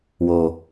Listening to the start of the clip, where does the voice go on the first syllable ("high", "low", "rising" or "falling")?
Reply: low